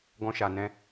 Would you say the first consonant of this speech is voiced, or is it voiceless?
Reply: voiced